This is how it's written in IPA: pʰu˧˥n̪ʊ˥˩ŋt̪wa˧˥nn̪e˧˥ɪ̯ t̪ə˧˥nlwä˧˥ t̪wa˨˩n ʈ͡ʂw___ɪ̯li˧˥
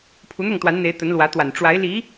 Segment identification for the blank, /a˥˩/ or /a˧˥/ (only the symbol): a˧˥